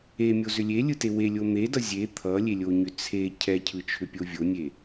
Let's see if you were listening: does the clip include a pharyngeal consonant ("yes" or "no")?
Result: no